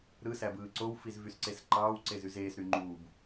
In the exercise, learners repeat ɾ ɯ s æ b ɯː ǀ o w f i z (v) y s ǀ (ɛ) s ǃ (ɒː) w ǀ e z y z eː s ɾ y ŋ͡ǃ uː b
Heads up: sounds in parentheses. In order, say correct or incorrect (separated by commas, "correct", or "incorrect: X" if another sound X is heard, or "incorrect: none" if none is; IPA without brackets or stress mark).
correct, incorrect: e, incorrect: ɑː